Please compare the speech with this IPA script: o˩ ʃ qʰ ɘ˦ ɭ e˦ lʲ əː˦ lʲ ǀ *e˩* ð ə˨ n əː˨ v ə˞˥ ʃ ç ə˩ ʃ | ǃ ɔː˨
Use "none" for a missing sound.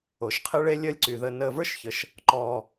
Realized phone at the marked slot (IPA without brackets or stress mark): y˩